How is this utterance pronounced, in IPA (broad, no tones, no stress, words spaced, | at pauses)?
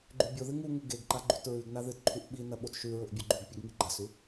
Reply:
ɡ͡ǃʉbʲoðɨ ŋuŋu ɡeɡǃa ɡ͡ǃʉtɹʉɡna ðɨtǃʰuʔ ɓinɐ ɓotʃʉɹɵʔ bʲɵɡ͡ǃʉɡpʲɵɡ ŋiɡ͡ǃasʉ